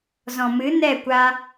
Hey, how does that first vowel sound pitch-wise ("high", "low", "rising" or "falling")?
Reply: low